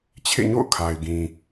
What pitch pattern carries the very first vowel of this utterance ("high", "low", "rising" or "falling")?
falling